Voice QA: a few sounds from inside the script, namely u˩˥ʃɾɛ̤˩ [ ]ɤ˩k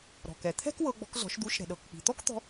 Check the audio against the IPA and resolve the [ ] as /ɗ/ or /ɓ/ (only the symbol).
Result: ɗ